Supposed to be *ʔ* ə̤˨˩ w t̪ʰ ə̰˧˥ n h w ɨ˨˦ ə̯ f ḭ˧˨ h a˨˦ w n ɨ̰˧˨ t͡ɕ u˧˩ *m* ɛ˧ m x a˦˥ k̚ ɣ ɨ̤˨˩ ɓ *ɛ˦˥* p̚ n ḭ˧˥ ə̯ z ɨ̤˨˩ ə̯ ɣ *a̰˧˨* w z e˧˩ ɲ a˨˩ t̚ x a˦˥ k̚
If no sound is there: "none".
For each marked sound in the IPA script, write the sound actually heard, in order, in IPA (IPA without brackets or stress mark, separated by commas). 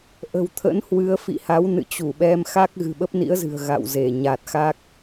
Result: ʔ, ɓ, ə˦˥, a̰˧˨